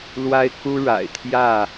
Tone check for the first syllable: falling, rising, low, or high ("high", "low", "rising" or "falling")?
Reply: high